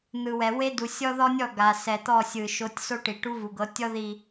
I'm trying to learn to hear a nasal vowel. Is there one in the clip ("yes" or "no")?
no